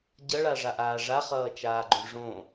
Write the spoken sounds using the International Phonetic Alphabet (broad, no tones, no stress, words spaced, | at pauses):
ɟʌɭaʐaʔaː ʐaχʌːt͡ʃaːɡ͡ǃõ ʐõ